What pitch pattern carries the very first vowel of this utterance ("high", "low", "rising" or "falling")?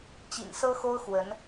low